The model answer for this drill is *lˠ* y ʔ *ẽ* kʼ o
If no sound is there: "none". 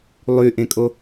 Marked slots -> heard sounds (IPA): lˠ, ẽ

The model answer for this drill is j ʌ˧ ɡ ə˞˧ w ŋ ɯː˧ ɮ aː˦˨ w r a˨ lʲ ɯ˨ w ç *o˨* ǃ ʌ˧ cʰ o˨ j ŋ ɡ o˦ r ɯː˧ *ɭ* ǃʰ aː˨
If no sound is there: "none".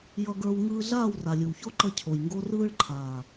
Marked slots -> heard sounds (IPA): o˦, ɭ

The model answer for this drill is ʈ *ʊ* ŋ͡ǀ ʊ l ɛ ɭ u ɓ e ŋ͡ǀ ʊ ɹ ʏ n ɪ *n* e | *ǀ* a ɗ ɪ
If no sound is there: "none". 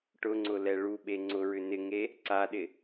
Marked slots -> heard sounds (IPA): ʊ, ŋ, ǀ

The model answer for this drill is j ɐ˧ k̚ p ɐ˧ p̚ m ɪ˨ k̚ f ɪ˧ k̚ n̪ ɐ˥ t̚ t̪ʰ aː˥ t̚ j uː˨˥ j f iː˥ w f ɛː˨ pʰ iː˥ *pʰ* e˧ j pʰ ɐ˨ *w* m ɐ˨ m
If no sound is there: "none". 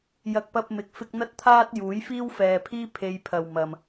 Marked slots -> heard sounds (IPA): pʰ, w

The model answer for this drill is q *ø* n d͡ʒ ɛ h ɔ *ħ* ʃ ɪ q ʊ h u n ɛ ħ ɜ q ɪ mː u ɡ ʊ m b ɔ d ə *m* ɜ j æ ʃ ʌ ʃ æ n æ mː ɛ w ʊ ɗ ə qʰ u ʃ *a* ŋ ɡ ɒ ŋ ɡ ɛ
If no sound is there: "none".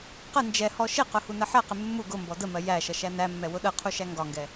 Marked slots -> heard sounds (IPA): ə, none, m, æ

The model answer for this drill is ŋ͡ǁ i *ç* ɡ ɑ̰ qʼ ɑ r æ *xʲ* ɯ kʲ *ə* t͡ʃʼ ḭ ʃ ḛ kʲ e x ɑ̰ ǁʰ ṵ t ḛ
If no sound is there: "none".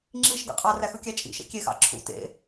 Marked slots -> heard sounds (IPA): ʃ, x, æ

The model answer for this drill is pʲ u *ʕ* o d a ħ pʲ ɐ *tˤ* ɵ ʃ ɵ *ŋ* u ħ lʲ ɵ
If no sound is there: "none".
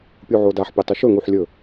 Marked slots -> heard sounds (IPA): ʕ, tˤ, ŋ

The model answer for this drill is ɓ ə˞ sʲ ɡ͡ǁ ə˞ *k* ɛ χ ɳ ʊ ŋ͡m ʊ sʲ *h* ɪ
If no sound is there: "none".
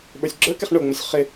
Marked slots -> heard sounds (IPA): k, χ

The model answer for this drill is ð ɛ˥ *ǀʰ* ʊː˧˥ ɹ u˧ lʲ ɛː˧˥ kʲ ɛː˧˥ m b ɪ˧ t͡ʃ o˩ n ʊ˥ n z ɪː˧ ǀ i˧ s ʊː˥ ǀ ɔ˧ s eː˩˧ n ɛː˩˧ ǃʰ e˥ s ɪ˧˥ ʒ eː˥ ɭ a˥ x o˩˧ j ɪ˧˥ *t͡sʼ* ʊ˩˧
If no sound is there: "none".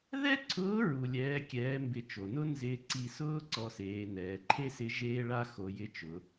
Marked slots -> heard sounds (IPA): ǀʰ, t͡ʃ

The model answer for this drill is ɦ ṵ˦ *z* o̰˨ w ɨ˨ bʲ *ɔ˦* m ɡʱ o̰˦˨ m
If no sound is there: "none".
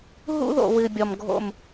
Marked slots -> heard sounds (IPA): ð, ɔ˨

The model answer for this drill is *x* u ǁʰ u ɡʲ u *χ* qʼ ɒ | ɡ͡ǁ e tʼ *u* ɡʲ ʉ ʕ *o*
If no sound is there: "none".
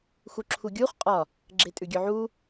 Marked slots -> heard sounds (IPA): x, χ, ʉ, u

